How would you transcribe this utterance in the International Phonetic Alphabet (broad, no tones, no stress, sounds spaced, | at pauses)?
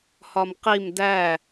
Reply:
h ɒ m q i m d æ